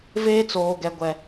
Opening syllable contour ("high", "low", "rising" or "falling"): high